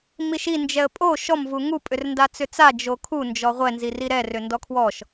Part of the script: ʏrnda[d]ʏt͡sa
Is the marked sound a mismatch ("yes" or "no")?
yes